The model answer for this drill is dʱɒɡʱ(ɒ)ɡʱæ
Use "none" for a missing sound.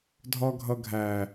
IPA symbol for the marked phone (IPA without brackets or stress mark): ʌ